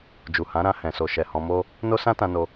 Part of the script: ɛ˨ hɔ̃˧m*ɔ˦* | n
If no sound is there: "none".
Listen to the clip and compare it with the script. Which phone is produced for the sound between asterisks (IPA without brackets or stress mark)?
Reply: o˦